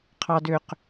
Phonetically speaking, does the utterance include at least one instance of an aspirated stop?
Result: yes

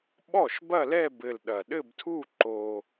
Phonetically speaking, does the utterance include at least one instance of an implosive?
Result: yes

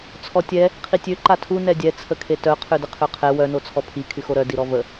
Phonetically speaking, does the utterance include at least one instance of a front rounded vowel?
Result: yes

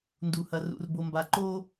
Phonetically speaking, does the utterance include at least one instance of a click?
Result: yes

